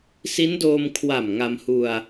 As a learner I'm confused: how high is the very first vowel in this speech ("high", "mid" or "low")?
high